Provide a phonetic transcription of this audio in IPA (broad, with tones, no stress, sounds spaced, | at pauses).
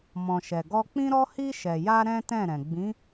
m ɔ̃˨ ʃ ɛ˨ ɡ ɔ˧ k͡p ĩ˦ ɾ ɔ˦ h i˧ ʃ ɛ˨ j a˧ ɾ ɛ̃˦ t ɛ̃˦˨ ɾ ɛ̃˨ ɡ͡b ĩ˨˦